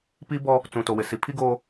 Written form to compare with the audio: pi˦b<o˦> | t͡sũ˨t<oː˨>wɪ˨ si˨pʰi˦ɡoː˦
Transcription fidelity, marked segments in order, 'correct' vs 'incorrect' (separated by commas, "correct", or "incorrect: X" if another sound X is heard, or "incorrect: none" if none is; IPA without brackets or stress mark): incorrect: ɔ˦, incorrect: o˨